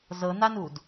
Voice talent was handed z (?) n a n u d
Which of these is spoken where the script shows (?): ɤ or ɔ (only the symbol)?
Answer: ɤ